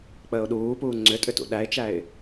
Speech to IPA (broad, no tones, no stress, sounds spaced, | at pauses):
k͡p əː ʊ̯ ɗ uː p uː ŋ͡ǀ ʏ tʼ ʏ t ṵ ɗ æ ɪ̯ t͡ʃ æ ɪ̯